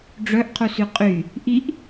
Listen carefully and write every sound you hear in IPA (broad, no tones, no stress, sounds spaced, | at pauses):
ɖ͡ʐ œ ʔ qʰ u s y qʼ y | ʔ i ʔ